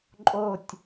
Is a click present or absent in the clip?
present